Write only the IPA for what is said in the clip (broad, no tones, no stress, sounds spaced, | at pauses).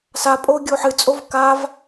s a pʼ o ɡʲ o ħ ɨ t͡sʼ o v k a v